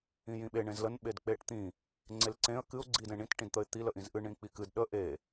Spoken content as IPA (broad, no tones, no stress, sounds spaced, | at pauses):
ĩ j ĩ ɓ e ɳ ẽ z l ə n ɓ e d k͡p e ʈ t̪ ĩ | ŋ͡ǀ e l ǀ ẽ ə̯ k ɨ ʊ̯ ɡ͡ǀ i d ẽ ɳ ĩ t ʈ ĩ d t̪ ə ɪ̯ t̪ i l ə ʔ ĩ z ʔ ɨ ɳ ĩ k͡p i k ɨ d ɗ ə ʔ e